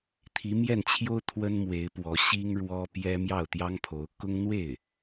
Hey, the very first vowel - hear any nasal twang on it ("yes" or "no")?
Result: no